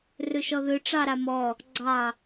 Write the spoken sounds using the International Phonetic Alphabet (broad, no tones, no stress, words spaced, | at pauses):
rɵʃɔðɵ ʈ͡ʂɑɾamɔ | ɡ͡ǀɑ